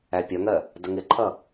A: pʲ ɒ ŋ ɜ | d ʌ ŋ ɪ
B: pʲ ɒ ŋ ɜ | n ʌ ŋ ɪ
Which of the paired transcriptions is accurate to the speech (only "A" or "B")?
A